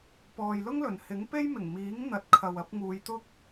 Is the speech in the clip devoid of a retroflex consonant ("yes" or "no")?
yes